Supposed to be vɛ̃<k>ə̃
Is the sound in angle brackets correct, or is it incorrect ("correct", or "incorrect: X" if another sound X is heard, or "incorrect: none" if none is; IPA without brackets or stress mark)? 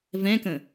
correct